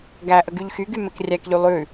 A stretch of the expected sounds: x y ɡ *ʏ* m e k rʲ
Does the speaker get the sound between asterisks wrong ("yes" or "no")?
yes